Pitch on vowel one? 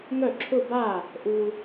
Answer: falling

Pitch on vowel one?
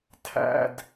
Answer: high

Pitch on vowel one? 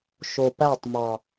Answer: low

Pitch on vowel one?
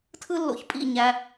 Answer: high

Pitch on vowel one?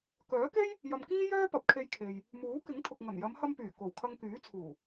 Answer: rising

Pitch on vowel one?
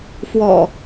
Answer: low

